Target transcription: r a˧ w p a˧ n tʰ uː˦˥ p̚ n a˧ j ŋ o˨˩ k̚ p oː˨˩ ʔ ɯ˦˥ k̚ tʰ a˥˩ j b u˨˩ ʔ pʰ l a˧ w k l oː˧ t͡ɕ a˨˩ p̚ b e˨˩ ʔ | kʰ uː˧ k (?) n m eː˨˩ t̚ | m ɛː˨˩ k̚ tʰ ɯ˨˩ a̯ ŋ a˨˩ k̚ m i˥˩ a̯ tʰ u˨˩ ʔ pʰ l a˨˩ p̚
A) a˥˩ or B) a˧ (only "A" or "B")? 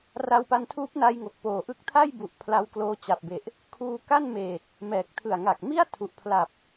A